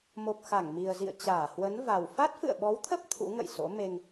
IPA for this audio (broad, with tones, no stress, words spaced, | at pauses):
mo˨˩p̚xa˧˩ŋmi˨˩ə̯zḭ˧˨ə̯ t͡ɕaː˧˩hwə˨˦nva˨˩w fa˦˥t̚fɨ̰˧˨ə̯ɓɔ˨˦wt̪ʰə˦˥p̚ t̪ʰṵ˧˥ŋə̰˧˨jso̰˧˥ me˧ŋ